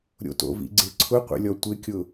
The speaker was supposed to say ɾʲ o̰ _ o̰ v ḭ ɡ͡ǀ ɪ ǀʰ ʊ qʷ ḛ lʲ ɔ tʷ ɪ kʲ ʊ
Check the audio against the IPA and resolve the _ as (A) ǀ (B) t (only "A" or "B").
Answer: B